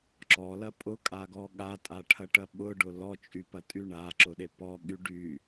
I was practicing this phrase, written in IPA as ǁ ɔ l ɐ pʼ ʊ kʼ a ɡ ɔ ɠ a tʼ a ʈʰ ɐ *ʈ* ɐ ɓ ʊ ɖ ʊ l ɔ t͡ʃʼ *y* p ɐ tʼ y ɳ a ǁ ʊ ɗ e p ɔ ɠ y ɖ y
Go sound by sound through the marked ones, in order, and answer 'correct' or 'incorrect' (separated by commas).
correct, correct